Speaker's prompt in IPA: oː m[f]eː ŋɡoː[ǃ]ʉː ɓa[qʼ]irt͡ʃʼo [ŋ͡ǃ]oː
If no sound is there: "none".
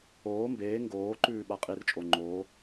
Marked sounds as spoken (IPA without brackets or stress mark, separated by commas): b, ǃ, qʼ, ŋ͡ǃ